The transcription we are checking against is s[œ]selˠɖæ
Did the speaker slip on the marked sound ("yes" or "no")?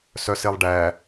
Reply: no